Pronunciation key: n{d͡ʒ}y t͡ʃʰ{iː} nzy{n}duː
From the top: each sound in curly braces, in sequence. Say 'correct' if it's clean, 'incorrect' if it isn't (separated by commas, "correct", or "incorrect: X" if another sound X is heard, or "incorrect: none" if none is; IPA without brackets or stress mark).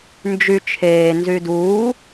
correct, incorrect: eː, incorrect: none